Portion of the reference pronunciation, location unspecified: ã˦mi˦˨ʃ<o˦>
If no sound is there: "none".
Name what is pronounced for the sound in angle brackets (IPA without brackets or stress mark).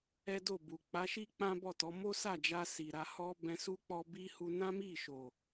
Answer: o˨